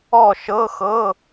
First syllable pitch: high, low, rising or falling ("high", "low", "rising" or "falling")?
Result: falling